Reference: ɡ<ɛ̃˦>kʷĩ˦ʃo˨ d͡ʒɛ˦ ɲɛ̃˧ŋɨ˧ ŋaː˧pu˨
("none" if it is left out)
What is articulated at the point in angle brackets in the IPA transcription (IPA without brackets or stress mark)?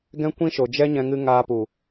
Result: ɛ̃˦